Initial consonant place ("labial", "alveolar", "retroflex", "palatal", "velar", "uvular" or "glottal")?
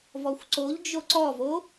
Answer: labial